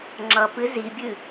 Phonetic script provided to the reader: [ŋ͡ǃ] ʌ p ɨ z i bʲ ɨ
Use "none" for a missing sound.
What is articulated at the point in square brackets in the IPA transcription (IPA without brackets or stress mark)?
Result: ŋ͡ǁ